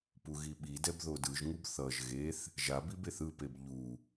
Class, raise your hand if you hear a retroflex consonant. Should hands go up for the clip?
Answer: no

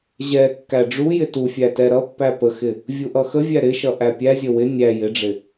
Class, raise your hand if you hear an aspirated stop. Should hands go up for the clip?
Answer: no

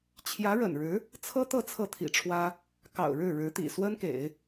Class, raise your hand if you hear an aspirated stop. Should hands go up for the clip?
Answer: yes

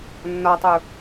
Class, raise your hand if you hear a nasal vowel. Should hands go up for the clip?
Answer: no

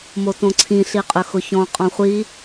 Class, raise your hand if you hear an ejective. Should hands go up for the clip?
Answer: yes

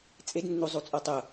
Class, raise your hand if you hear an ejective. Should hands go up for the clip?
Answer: yes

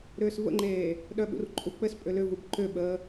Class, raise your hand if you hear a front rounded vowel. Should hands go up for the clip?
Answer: yes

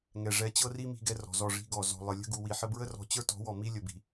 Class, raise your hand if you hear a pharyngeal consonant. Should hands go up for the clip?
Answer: yes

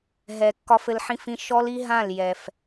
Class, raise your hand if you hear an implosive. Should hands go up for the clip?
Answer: no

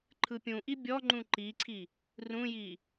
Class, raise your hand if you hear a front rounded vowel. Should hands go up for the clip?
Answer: no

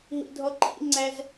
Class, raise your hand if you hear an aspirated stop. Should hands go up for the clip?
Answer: no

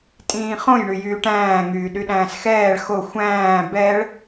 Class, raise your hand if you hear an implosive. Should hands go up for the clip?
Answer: yes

